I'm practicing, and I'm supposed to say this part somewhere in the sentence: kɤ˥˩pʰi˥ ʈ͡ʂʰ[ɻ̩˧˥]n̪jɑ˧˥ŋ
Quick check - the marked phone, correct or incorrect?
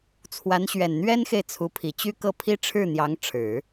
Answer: incorrect: ɻ̩˥˩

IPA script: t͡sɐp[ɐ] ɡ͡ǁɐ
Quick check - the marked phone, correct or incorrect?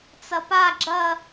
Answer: incorrect: a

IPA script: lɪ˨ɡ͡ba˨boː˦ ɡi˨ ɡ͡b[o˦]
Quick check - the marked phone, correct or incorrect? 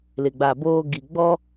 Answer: incorrect: ɔ˦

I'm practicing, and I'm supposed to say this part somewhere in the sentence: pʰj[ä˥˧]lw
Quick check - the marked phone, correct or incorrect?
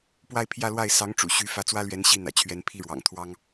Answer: correct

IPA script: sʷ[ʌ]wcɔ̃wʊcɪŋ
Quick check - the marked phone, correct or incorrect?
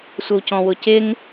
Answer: correct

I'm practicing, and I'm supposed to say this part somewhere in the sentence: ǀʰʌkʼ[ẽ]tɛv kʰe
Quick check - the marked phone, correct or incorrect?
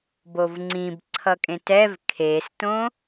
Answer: correct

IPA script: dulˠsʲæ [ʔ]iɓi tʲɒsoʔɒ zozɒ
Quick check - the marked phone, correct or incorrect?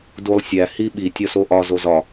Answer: incorrect: h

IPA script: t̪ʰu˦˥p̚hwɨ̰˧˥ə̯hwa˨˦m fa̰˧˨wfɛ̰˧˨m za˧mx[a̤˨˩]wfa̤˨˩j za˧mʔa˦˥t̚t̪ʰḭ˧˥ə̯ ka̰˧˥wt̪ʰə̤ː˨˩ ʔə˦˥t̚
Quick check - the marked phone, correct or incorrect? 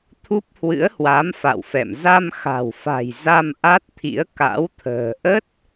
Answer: correct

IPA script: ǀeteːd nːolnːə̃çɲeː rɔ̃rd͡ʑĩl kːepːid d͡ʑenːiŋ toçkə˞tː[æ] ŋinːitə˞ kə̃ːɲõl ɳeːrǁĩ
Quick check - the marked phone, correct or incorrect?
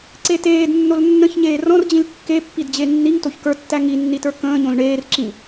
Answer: correct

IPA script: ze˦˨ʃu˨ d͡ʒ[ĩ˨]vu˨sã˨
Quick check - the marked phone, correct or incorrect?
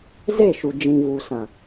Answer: correct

